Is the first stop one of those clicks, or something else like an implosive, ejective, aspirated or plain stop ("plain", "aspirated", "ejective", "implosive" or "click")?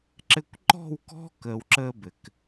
click